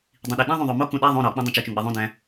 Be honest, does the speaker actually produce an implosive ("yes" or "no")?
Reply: yes